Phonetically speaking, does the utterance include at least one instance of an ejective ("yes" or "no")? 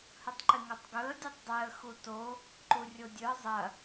no